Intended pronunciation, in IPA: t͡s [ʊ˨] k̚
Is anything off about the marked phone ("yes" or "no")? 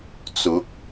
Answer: yes